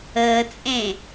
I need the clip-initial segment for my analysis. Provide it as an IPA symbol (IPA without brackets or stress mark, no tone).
əː